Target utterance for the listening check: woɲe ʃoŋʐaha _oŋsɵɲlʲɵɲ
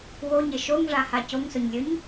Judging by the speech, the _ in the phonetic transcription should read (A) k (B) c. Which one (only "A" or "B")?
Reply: B